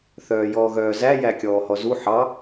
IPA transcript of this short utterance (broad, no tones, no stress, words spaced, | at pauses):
θœːjɔːɣœːzæ jækʲɔːhɔzu ħɑ